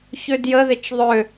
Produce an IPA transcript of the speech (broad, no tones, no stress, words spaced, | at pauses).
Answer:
çødjəðɪt͡ʃ ðˤø